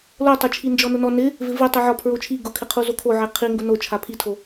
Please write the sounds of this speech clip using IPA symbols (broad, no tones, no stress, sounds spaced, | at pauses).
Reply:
l o tˤ ʊ t͡ʃʰ i n d͡ʒ ɔ n ʊ n ɔ n ɪ | v ɪ v i tˤ i ʕ ɔ pʰ ɹ o t͡ʃʰ i ɡ ʊ kʰ ɪ qʰ u z o kʰ o ʕ e qʰ i ŋ ɡ ʊ n o t͡ʃʰ a pʰ i tʰ o